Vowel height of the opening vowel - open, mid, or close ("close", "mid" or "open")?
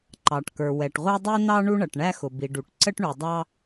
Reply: open